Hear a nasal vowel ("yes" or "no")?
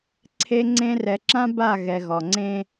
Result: yes